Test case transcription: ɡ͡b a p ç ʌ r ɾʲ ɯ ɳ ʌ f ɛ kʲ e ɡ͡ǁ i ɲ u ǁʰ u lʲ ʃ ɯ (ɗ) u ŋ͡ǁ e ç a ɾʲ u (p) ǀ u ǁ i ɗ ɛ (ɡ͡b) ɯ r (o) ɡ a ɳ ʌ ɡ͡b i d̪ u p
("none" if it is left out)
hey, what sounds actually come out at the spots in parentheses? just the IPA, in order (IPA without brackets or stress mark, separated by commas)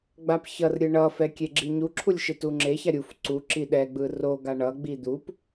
t, f, ɡ͡b, o